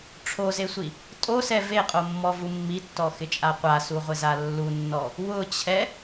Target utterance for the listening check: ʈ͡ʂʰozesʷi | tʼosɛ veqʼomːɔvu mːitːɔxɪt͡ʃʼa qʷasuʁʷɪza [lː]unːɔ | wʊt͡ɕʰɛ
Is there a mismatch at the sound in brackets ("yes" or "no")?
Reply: no